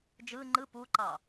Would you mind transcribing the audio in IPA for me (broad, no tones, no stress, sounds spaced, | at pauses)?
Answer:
d͡ʒ ɯ ŋ͡ǃ ɯ p u ǃ ɑ